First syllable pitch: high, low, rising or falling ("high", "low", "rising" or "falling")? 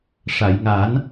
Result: low